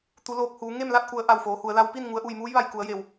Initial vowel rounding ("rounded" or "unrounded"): rounded